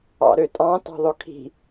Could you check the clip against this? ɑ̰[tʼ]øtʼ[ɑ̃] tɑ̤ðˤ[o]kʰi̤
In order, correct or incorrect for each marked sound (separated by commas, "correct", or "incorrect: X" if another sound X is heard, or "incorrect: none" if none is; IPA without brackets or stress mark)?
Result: incorrect: ɾ, correct, correct